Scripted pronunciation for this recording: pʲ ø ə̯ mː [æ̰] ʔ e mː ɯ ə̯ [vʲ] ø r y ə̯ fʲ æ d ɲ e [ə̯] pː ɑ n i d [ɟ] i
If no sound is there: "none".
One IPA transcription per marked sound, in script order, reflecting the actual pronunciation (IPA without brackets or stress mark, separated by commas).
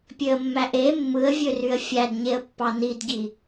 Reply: æ, vʲ, ə̯, ɟ